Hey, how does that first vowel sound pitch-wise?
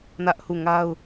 high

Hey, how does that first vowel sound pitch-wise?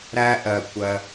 high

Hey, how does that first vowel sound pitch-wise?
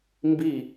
falling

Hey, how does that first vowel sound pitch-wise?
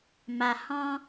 low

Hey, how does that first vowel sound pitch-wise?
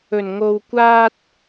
low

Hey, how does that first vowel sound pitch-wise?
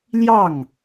falling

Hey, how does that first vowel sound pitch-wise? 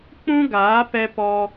high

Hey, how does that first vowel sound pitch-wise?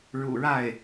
low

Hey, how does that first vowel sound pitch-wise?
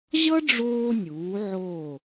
high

